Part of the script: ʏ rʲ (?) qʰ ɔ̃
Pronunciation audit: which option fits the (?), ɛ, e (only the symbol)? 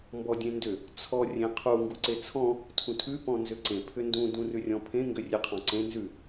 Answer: e